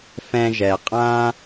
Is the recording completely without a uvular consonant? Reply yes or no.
no